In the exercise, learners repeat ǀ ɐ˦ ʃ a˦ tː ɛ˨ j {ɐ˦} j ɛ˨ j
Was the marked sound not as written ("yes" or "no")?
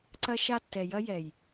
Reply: no